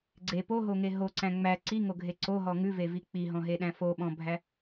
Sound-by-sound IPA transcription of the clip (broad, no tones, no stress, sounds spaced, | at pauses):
ɡ͡ǀ e p o ɦ o ŋ e ɦ o ǀ æ̃ ŋ͡m æ ǀ i ŋ o ɡʱ e ǀ o ɦ ɔ ŋ ʉ v e v i k͡p i ɦ ɔ̃ ɦ e ɗ æ̃ f o ɓ ɔ̃ bʱ æ